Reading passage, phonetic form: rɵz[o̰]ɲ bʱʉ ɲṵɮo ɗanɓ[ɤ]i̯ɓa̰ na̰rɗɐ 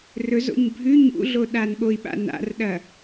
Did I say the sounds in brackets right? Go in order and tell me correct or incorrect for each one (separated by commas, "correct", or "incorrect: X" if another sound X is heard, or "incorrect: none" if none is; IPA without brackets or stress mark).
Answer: correct, incorrect: o